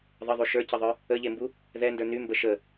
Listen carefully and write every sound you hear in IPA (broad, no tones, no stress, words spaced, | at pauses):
ðˤəðˤy ʃə˞cɘðˤə˞ | əʎembu | ðɛndə˞ nymbə ʃə